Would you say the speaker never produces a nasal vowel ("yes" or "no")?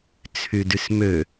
yes